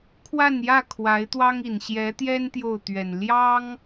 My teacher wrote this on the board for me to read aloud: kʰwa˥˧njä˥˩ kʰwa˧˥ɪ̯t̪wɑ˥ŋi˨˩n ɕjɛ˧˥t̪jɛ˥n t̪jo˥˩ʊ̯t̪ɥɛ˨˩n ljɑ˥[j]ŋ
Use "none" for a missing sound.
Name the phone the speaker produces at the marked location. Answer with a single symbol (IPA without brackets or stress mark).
none